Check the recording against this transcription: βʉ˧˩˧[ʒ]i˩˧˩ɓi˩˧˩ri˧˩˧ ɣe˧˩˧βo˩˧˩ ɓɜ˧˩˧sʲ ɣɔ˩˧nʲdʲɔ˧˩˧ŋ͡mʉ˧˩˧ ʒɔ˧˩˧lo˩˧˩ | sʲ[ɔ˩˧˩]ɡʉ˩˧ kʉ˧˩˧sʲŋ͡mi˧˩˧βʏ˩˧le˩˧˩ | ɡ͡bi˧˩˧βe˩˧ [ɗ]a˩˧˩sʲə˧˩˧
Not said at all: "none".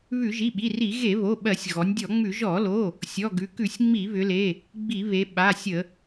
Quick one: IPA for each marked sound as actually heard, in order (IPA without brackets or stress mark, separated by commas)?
ʒ, ɔ˩˧˩, ɓ